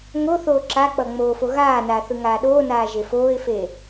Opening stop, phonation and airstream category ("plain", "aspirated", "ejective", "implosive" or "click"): click